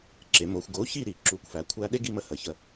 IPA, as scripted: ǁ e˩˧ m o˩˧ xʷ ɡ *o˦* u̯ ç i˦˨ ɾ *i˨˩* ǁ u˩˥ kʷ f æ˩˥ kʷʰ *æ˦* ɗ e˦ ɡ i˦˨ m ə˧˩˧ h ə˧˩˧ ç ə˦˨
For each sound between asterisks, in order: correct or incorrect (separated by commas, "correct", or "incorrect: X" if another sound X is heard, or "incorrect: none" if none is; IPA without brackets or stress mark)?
incorrect: o˩˥, incorrect: i˧˩˧, correct